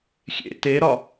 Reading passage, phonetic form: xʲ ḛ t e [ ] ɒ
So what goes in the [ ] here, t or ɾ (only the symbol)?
ɾ